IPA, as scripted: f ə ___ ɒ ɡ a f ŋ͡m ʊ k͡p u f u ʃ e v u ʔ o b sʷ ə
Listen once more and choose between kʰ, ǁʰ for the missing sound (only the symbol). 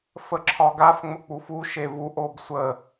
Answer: ǁʰ